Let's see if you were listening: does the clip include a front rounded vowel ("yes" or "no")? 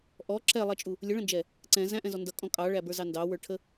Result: no